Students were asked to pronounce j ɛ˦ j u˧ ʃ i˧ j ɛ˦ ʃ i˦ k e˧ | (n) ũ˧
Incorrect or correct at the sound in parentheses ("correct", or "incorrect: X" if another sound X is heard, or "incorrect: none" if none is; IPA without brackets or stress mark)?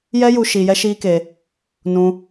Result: correct